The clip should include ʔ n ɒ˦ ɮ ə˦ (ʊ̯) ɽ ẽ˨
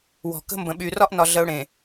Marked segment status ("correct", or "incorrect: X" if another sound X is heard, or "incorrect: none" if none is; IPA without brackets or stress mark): correct